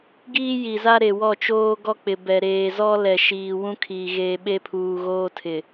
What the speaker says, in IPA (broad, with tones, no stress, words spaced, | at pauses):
ɡiː˦ji˨za˦ɾe˨ wɔ˦˨t͡ʃoː˦ ɡɔ˦k͡pɪ˨bɛ˨ ɾeː˨zɔ˦ lɛ˨ʃiː˨ wũ˦kʰiː˨ ɣeː˨ɓe˦pʰuː˨ ɣoː˦tʰɪ˨